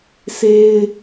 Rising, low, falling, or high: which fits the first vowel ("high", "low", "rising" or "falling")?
high